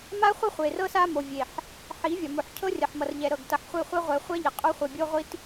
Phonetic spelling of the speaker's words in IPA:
m a˦ χʷ ɪ˦ χʷ e˨ r ɤ˦ s a˦ m o˨ vʲ e˨ ħ | ħ i˨˦ vʲ ɒ˨ m o˨ ħ cʰ ɤ˦ rʲ ʌ˨ ħ m ʌ˨ r ʎ ɛ˨ ɾ ɤ˨ ɡ t ʌ˨ ħ χʷ e˦˨ χʷ e˦ ʁʷ ɛ˨ χʷ ɛ˦ ʎ ɪ˨ qʼ o˦ χʷ e˨ bʲ o˦ ʁʷ i˦ t

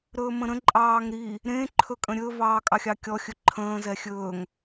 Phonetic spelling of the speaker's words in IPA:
ɾ ɵː m ə̃ ɾ ə̃ ǃʼ ɑː ŋ ɾ i | ɾ ẽ ǃʰ ɵ kʼ ə̃ ɾʲ ɵ v ɑː kʼ ɑ xʲ ɑ kʲ ɔ xʲ ɵ ǃʰ ə̃ː z ɛ xʲ ɵː ŋ

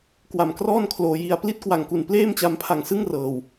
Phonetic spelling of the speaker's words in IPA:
k w a˨˩ m k r ɔː˥˩ n kʰ l oː˧ j i˧ a̯ p l i˦˥ t̚ k w a˨˩ ŋ k u˨˩ n p l eː˥˩ m t͡ɕ a˧ m pʰ a˨˩ ŋ s ɯ˥˩ ŋ r ɤː˨˩ w

